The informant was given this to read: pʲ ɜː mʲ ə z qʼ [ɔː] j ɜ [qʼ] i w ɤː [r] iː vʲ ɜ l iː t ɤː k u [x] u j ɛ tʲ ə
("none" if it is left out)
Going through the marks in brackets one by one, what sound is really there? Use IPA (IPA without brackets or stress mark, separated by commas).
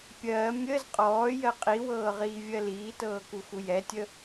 ɔː, qʼ, ʁ, x